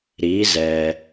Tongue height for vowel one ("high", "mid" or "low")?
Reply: high